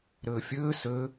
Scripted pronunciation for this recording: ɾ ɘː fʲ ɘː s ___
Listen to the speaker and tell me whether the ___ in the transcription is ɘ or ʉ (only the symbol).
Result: ɘ